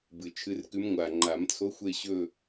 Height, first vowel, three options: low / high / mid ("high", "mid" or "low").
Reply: high